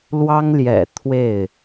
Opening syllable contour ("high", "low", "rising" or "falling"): high